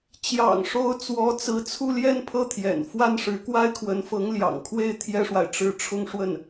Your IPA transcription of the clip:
t͡ɕ j ɑ̰˨˩ ŋ ʂ o˧˥ ʊ̯ t͡s w ɔ˧˥ t͡s ɹ̩˧˥ t͡sʰ u˥˧ l j ɛ˥˧ n pʰ ɤ˥˩ t̪ʰ j ɛ̰˨˩ n f w a˥˩ n ʂ ɻ̩˧˥ k w a˥ ɪ̯ kʰ w ə˧˥ n f ɤ˧˥ ŋ l j ɑ̰˨˩ ŋ kʰ w e˥˩ ɪ̯ t̪ʰ j ɛ˥ ʂ w a˨ ɪ̯ ʈ͡ʂ ɻ̩˥˧ ʈ͡ʂʰ ʊ˥˧ ŋ ʂ w ə˥˩ n

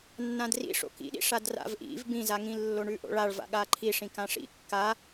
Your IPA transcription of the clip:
nː ã d r ḭ ʂ o̰ k ḭ ɗ ḭ ʂ a d r a̰ v ʔ ḭ v b ĩ z a ŋ ĩ lː o ɳ ʉ ʔ o̰ ɭ a ɭ v a̰ ɠ a ǃʰ i ʂ ĩ k ã ʂ ḭ kː a

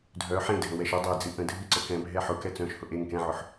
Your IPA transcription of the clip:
dʱ œ ħ ẽ dʱ ə̃ w ɛ ʃ ɵ dˤ ɛ d͡z ɨ ʔ ə̃ dʱ ɨ ǀ ə k ɛ̃ bʱ ɛ ħ ʊ k ɛ t͡s œ̃ ʃ h ʊ ʔ e ŋ k ɛ̃ ʕ ʊ ħ

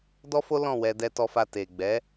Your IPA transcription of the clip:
d ɔ˦ f o˦ l ɔ̃˦˨ w ɛ˧ d ɛ˧ t ɔ˧ f a˧ t e˨ ɡ͡b ɛ˨˦

